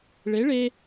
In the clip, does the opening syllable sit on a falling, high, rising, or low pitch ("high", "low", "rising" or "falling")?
rising